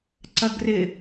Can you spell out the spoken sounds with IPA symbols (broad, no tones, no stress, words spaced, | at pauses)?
ǀɐɡrɪ